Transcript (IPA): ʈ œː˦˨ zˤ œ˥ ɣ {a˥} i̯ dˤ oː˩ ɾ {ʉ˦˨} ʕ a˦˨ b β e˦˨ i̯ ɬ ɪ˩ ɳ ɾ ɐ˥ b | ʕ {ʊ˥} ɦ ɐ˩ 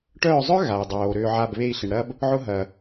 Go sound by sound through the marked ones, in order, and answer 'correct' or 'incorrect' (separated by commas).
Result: incorrect, incorrect, correct